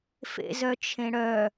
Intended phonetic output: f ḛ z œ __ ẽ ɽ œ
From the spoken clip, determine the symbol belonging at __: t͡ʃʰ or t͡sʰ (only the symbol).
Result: t͡ʃʰ